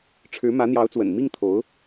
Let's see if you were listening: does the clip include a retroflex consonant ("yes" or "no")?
yes